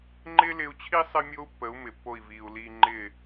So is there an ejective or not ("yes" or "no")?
no